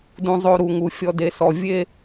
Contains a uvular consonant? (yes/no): no